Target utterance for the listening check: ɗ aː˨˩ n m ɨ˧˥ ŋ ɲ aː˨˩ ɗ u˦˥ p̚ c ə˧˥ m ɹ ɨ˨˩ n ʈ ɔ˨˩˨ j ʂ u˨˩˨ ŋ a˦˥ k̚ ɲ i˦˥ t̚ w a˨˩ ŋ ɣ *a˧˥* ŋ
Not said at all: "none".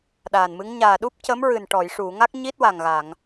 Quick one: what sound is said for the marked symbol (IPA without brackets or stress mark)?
a˨˩˨